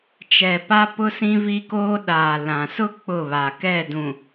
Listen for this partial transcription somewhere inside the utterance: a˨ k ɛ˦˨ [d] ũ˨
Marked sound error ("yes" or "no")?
no